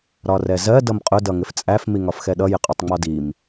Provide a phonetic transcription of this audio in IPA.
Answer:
ɾ ɒ r ɛ z ɜ d ʌ m qʼ ʊ d ʌ ŋ ɪ f t͡sʼ æ f m i ŋ ɒ f x ɛ ɗ ʌ j ɪ qʼ ʊ tˤ ŋ͡m ɒ d i m

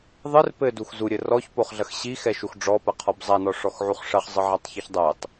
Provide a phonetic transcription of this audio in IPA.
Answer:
ðˤ ɨ r p ɘ d u x z u ɾʲ ɘ r ɔ ç p o χ ɮ ɐ x ɕ i x ɛ ʃ u x ɖ͡ʐ ɔ p ɐ qʰ ɔ b zˤ a n ɔ ʂ ɔ x ʕ u χ ʂ ɐ χ zˤ ɨ ʕ a tˤ ç ɨ ç dˤ ɛ tˤ

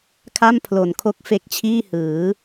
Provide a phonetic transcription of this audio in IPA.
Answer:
kʰ a˥˩ m pʰ l o˨˩ n kʰ o˦˥ k̚ f e˦˥ k̚ t͡ɕʰ iː˥˩ h ɯː˩˦

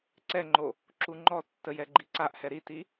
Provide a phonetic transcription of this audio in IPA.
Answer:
ǀ ɛ ŋ͡ǃ o | ǁ u ŋ͡ǃ ɔ tː ə j ɛ ɡ͡ǃ i ǀ a ʔ h ɛ ɾ i t i

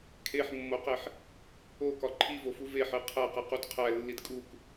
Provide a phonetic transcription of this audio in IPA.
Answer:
kʰ e ħ mː o q e ħ | o k ɒ ǃʰ i v o f u v e ħ e qʰ æ q e q u d qʰ æ lː i d kʼ u k

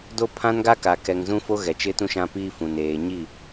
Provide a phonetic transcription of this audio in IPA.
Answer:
d o˦ pʰ ã˦ n ɡ a˦ k a˨ k ɛ˨ ŋ z ũ˦ f o˦ ɣ ɛ˨ t͡ʃ ɪ˦ t ũ˦ ʃ ã˦ p iː˦ f ũ˨ n eː˨ ɲ i˦˨

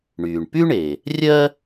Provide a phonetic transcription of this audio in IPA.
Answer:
ɳ yː˩ ɳ p y˥ ɳ e˩ | rʲ ɜ˦

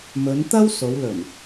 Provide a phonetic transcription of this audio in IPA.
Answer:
m ɵ˨˧ n t̪ ɐ˥ w s o˨˧ w l ɵ˨˩ n

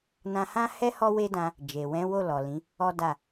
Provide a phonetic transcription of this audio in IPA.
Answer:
n ã˧ h ã˦ h ɛ˦ h ɔ˦ w e˦ d ã˧ | d͡ʒ e˨ w ɛ̃˨˦ w o˦˨ l ɔ˨ l ĩ˨˦ | ɔ˦ d a˦˨

